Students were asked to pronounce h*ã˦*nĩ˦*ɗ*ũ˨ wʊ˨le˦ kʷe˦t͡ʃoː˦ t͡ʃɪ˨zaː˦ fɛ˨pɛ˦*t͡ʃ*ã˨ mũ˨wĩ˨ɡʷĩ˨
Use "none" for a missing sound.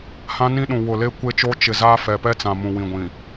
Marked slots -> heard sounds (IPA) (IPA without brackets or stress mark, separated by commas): ã˦, ɗ, t͡s